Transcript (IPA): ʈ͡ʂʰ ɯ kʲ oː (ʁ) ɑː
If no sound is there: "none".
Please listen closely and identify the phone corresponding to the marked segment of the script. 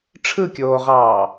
ʁ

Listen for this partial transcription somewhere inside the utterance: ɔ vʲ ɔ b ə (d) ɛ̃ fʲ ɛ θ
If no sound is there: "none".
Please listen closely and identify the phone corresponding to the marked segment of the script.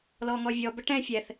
ʈ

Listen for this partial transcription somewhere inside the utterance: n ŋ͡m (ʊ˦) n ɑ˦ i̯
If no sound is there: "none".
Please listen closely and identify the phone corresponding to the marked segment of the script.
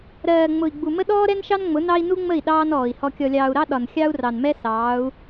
ʊ˨˦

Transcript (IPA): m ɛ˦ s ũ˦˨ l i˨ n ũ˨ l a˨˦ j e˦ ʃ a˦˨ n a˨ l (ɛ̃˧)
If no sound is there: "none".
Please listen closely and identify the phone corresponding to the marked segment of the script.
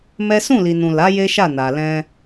ɛ̃˧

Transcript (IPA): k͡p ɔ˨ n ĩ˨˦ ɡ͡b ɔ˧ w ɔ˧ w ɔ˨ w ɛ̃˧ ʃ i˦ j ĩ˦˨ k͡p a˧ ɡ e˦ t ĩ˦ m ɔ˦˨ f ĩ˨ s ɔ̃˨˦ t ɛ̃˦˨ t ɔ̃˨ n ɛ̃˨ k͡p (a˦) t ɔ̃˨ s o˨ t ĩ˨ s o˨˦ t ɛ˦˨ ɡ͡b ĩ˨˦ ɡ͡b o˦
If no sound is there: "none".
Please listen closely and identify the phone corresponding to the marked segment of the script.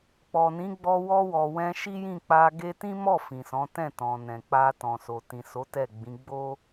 a˧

